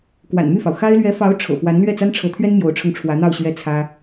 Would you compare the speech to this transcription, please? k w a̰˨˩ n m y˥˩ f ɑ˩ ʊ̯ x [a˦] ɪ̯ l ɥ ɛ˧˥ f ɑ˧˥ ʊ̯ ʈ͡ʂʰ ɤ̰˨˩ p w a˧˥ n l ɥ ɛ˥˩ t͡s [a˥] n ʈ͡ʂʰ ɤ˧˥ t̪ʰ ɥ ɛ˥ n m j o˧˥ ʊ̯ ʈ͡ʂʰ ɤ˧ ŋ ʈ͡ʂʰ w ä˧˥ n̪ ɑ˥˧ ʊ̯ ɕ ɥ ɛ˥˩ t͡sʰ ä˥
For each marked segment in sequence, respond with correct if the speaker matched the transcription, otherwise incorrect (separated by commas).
incorrect, correct